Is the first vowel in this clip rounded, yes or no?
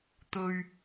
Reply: yes